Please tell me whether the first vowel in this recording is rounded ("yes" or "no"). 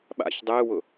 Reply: no